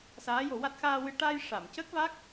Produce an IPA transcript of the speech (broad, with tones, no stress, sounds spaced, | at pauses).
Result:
s aː˧˥ j o˨˩˦ w a˦˥ t̚ x aː˧ w ɨ˧ ʈ a˧ j ʂ a˨˩˨ m c ə˦˥ k̚ v a˦˥ k̚